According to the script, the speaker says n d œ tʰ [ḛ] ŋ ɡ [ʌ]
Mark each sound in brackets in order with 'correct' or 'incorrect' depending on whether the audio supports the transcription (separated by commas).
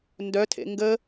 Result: correct, incorrect